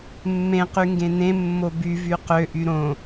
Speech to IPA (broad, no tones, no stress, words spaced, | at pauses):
mːẽqy ŋɡẽnẽmːo byvy qøʔy ɾõ